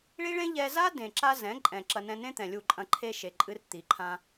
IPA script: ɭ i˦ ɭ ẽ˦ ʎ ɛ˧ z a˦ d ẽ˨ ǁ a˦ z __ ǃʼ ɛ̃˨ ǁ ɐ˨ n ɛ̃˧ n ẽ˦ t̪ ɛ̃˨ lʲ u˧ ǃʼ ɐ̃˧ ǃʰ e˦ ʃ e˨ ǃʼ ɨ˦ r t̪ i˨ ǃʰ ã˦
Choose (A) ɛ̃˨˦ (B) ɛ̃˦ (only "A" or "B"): A